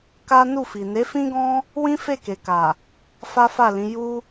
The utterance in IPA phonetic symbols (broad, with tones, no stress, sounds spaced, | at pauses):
k a˦ n u˦˨ f i˨ n e˨˦ f ĩ˦ ɡ ɔ̃˦ | w ĩ˦ f e˦˨ k e˨ k a˨ | f a˦ f a˦˨ l ĩ˨˦ j u˦